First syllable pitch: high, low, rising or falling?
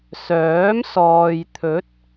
rising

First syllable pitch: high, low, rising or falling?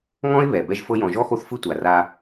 high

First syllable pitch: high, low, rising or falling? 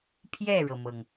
falling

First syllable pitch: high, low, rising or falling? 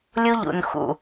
high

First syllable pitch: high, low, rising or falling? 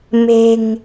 low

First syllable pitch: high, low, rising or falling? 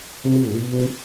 falling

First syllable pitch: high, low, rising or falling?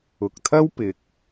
low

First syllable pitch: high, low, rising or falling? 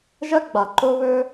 high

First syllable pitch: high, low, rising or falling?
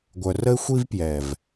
low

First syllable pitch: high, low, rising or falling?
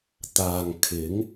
low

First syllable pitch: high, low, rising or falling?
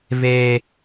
low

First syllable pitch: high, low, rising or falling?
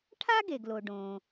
high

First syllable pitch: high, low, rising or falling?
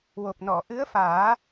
low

